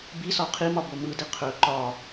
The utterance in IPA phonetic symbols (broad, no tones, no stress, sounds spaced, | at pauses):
b i s ɒ qʰ i m ɒ b o m ɯ d i qʰ ɵ ǃ ɒ